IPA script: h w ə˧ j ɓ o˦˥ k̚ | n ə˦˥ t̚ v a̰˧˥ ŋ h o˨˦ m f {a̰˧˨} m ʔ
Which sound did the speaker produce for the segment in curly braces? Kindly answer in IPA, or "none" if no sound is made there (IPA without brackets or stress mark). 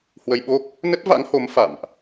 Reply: a̰˧˨